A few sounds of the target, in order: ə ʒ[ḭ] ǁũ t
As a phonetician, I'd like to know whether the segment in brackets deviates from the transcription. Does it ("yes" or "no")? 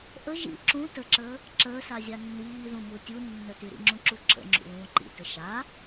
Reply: no